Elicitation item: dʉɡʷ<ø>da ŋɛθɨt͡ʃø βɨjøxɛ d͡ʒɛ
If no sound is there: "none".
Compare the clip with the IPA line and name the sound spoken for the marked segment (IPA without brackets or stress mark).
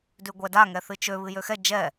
ɛ